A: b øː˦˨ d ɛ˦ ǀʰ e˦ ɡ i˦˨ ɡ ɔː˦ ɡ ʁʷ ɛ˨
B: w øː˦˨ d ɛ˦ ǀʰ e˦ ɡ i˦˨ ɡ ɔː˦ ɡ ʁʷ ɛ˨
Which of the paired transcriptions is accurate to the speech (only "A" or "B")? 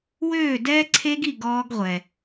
B